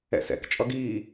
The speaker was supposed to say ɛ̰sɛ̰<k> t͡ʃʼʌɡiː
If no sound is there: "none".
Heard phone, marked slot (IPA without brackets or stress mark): k